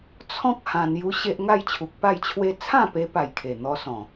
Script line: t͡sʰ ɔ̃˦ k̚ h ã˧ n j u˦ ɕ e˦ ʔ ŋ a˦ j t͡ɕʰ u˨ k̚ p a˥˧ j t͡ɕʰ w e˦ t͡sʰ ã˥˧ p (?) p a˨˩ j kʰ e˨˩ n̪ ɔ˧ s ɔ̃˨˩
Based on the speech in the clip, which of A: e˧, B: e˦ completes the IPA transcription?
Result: A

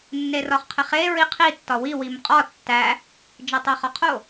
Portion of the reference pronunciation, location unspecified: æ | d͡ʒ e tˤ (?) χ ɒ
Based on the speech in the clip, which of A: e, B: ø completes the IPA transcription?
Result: A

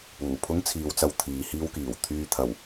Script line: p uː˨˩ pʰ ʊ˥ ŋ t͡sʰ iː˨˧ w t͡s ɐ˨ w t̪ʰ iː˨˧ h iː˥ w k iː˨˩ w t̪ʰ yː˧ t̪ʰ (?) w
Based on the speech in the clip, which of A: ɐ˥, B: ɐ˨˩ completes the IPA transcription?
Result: B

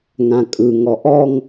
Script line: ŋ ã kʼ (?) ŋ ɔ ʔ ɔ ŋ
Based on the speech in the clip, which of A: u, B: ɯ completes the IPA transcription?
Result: B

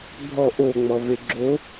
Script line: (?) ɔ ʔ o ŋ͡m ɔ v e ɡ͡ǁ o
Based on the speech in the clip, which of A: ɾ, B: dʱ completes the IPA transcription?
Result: B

